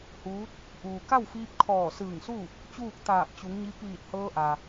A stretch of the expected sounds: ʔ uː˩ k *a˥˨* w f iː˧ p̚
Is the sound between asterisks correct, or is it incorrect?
correct